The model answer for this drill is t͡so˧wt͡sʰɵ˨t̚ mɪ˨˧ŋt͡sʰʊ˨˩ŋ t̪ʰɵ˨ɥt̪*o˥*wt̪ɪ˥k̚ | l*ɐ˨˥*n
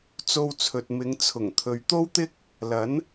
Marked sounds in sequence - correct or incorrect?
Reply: correct, correct

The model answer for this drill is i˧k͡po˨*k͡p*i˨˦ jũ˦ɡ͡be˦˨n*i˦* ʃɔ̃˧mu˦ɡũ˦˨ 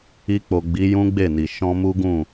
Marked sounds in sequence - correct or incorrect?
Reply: incorrect, incorrect

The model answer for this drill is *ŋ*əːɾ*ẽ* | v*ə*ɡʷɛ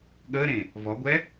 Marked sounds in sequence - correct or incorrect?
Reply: incorrect, correct, incorrect

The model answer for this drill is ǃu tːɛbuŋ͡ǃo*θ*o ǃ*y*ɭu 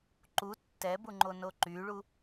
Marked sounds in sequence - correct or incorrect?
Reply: incorrect, correct

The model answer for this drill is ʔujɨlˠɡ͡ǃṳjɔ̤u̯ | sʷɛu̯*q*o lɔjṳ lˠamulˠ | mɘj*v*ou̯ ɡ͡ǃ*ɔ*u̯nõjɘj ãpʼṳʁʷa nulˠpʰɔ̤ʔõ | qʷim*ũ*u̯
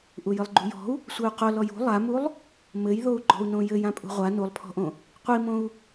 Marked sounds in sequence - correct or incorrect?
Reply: correct, incorrect, incorrect, incorrect

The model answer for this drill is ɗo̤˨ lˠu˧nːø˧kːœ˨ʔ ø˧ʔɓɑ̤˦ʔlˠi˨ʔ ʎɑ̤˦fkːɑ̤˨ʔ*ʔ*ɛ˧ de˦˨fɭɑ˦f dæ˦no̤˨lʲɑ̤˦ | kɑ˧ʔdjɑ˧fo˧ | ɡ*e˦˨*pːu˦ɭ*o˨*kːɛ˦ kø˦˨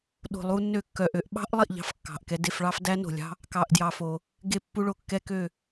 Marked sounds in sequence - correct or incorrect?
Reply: incorrect, correct, incorrect

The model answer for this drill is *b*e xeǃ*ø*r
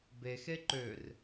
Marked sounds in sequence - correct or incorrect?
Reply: correct, correct

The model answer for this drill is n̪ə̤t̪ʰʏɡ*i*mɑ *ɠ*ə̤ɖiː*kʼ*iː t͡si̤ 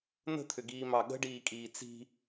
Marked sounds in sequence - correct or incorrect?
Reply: incorrect, correct, correct

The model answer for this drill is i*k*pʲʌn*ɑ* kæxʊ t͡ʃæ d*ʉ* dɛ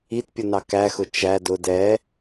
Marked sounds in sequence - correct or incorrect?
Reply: incorrect, correct, incorrect

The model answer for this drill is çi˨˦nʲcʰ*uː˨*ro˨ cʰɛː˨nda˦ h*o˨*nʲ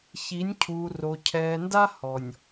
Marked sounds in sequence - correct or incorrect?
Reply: correct, incorrect

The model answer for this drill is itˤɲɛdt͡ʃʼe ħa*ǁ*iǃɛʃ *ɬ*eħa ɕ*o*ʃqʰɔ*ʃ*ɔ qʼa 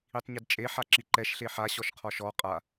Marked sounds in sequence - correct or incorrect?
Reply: correct, correct, incorrect, correct

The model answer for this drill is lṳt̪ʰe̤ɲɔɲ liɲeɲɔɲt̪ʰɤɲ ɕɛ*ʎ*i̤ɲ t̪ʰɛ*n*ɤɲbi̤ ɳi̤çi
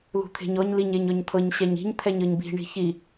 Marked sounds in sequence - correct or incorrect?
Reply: incorrect, incorrect

